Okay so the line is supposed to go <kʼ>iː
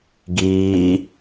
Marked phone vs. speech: incorrect: ɡ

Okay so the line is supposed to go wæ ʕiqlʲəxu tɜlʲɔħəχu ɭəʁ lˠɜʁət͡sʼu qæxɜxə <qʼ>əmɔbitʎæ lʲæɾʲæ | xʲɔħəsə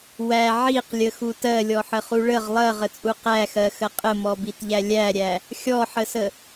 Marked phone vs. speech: correct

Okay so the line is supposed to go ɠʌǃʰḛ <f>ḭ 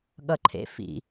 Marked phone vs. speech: correct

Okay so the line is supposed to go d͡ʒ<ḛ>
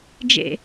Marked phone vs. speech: correct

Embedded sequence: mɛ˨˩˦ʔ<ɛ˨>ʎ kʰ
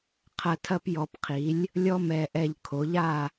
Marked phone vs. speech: correct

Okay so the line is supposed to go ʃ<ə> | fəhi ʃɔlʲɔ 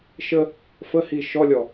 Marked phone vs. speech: correct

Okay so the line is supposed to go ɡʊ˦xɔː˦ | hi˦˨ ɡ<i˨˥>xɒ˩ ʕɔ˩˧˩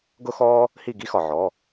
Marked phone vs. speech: incorrect: i˦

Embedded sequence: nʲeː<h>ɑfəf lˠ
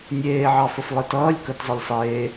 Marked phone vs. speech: incorrect: ʕ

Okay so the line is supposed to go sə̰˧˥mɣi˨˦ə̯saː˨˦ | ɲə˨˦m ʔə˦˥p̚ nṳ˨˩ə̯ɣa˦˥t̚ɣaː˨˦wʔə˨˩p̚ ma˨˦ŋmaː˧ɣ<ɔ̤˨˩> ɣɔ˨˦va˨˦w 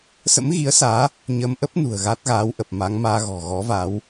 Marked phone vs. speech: correct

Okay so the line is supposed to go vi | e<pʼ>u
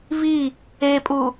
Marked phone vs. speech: correct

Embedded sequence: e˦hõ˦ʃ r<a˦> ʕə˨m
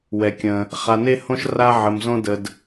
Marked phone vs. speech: correct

